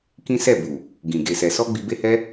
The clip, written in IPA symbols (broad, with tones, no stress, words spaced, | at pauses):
kĩ˦sɛ˦˨bu˨ | ɡĩ˨ ɡe˨sɛ˨sɔ˧ ɡ͡bi˧be˦hɛ˦